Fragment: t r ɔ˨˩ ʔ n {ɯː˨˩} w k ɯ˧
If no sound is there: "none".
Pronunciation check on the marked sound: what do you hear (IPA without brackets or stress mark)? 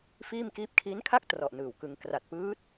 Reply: ɯː˨˩